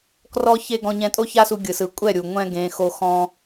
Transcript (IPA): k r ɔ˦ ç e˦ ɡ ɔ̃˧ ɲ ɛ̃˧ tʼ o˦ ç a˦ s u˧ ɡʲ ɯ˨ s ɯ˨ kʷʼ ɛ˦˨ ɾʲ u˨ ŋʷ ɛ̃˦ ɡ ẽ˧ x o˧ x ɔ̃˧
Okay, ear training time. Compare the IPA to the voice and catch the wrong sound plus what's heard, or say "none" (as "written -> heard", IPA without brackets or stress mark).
none